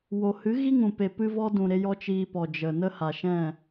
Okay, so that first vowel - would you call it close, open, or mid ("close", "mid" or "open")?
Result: mid